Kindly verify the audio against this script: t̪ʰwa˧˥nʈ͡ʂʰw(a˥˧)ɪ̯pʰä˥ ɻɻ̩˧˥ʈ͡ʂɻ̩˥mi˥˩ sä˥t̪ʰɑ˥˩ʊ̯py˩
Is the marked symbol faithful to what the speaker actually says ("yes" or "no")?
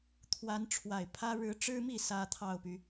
no